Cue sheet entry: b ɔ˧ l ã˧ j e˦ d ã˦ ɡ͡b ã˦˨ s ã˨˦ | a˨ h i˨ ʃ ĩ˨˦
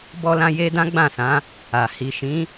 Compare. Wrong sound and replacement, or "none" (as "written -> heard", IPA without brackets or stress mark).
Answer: none